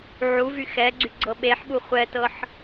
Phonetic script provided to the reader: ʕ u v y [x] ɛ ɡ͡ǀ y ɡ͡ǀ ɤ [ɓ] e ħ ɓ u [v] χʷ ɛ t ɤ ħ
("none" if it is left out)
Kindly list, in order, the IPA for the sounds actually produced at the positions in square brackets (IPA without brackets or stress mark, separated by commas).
x, ɓ, none